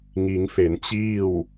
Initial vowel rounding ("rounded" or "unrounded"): unrounded